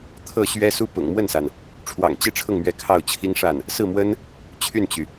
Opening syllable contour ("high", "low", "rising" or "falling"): falling